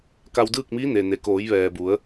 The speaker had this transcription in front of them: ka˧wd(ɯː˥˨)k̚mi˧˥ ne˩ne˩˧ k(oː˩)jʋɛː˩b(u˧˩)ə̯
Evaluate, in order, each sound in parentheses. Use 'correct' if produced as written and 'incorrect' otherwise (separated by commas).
correct, incorrect, incorrect